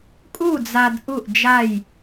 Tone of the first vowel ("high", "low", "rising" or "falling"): falling